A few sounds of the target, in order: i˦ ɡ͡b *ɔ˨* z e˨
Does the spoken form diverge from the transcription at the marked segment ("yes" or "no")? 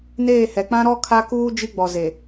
no